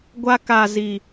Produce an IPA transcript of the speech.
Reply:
ɡʷ a˧ k a˨ z i˨

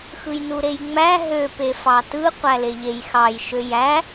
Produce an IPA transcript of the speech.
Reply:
x ɯ j n u ɾ e j ŋ͡m æ ɦ ø p e f ɑ t ɯ qʷ æ l e ʎ e j x ɑ j ʃ ø j æ

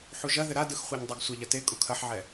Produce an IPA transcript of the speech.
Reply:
ħ u ʒ ɐ ð ɘ ɾ a d ɯ x χʷ a ɲ dˤ e ɡ sʷ a ʎ ɐ t e kʼ u kʰ ɐ ħ ʕ ɛ

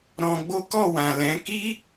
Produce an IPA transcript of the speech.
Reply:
ɾ ɔ̃˧ ɡ͡b o˦ k ɔ˦˨ w ã˨ l ɛ̃˨˦ k i˦

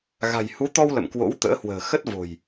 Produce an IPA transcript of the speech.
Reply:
ɣ a̤˨˩ j h u˨˦ t̪ ɔ˧ w l ə̰˧˨ m k w o̰˧˥ w t̪ ə̰ː˧˥ h w ə̤ː˨˩ x ə˦˥ t̚ v o̤˨˩ j

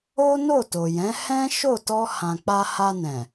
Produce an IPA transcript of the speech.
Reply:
o˦ n o˦˨ t o˨ j ɛ̃˨˦ h ɛ̃˦ ʃ o˦˨ t ɔ˧ h ã˨ k͡p a˧ h a˧ n ɛ̃˨

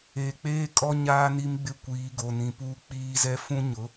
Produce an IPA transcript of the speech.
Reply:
eː˨ k͡p eː˦ kʼ ɔ˦ ɲ aː˦ n i˦ m ɡ͡b ɪ˦ kʷ iː˨˦ ɡ o˨ n ĩ˨ p uː˦ k͡p iː˦ z ɛ˦ f ũ˦ ɲ ʊ˨˦

